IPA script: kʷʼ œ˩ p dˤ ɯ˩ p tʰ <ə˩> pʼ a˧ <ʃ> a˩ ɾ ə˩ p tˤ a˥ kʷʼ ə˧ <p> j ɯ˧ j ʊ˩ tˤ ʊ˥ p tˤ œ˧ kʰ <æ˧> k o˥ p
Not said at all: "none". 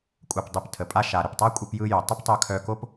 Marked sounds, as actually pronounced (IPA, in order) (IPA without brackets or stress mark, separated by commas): ə˩, ʃ, p, œ˧